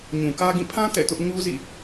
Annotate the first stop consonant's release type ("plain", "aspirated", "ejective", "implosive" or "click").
plain